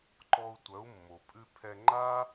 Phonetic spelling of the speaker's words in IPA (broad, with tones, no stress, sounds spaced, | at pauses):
ǃ ɔ˧ u̯ tʷ œ˩˥ u̯ mː o˩ pʼ ʉ˧ pʰ ɛ˧ ŋ͡ǃ a˥